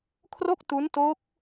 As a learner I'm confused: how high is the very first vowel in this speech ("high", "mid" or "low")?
mid